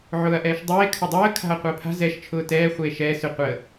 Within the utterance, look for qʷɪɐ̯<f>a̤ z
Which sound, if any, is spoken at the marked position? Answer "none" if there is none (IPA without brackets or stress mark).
pʰ